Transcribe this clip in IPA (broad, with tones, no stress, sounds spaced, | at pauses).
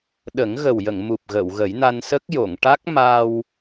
ɗ ə˨˩˦ ŋ ɣ ə˨˩ w j ə˨˩˨ ŋ m u˨˩ p̚ ɣ ə˨˩˨ w ɣ ə˨˩˦ j n a˧ n s ə˦˥ k̚ j o˨˩˨ ŋ ʈ a˦˥ k̚ m a˧ w